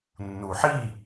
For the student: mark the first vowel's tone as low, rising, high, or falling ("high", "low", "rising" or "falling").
low